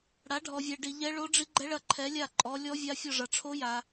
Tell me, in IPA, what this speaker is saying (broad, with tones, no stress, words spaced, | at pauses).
ɽa˨˦ɖʱɔ˨vʲɛ˨ ɖi˨ ʎɛ˦˥ɭo˦˥ɖ͡ʐi˦˥ ɡ͡ǃɛ˦˥ɭɐ˦˨ ǃʰɛ˨˦lʲa˦˨ ǃʼɔ˨˦lʲɔ˦˥vʲa˦˥ fʲɔ˦˨ʐɐ˨ʈ͡ʂʰo˦˥ja˨